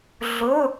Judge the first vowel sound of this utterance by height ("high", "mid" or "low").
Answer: high